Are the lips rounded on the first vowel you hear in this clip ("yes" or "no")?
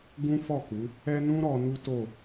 yes